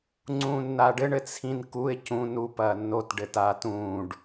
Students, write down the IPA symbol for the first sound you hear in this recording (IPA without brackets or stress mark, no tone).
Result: ŋ͡ǀ